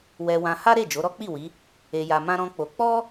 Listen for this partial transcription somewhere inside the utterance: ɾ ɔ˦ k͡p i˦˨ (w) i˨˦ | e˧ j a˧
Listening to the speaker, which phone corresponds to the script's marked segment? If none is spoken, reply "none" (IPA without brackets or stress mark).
w